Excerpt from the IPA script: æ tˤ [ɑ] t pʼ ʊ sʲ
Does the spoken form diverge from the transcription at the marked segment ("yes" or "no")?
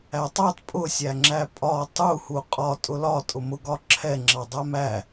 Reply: no